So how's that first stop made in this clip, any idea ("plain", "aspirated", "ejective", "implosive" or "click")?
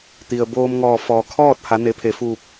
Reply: plain